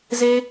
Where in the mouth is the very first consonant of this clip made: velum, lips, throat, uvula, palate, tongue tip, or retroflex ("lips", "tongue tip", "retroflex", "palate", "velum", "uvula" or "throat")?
tongue tip